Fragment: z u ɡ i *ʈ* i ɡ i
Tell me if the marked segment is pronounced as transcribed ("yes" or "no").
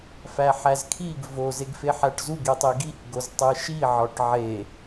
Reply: no